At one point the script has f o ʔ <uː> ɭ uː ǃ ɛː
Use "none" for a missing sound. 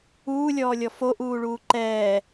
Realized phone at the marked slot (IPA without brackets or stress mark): uː